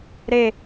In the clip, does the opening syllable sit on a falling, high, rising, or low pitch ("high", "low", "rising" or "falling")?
falling